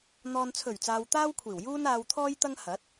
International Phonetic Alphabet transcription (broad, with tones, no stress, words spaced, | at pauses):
n̪ɔː˨nt͡sʰɵ˨˩ɥt͡saː˨w t̪aː˥wkʷʰiː˨˩wjuː˥n aː˧wt̪ʰɔː˥jt̪ɐ˥ŋ hɐ˨˥t̚